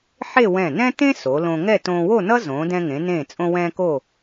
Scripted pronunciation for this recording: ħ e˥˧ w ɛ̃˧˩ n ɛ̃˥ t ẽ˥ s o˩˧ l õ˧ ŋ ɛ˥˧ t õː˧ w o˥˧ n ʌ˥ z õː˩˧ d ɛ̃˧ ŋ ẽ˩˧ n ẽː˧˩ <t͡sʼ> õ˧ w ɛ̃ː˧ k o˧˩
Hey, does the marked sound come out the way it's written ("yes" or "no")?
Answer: yes